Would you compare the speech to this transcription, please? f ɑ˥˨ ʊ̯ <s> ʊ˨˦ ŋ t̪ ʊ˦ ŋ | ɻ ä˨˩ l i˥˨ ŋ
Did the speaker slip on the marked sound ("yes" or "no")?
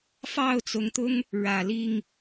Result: yes